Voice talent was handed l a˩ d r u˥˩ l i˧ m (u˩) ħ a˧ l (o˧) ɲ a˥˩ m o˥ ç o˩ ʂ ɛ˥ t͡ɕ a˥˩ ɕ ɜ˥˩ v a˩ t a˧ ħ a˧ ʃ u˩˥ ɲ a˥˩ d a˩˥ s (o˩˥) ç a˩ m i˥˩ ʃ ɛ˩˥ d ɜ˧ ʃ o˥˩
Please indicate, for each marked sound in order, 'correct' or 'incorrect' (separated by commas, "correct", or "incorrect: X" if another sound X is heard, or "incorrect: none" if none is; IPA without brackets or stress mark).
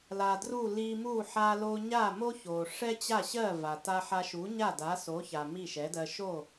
incorrect: u˥˩, correct, correct